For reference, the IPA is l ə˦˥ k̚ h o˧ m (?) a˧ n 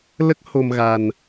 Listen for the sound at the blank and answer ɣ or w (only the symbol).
ɣ